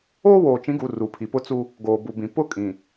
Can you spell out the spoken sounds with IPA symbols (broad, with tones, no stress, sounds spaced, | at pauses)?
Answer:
oː˦ w oː˨ t͡ʃ ĩ˨˦ ɡ u˨ r u˨ pʰ i˨ p ʊ˦ t͡s u˦ | ɡ oː˨ b u˨ b ĩ˨ p ʊ˦ kʼ ĩ˨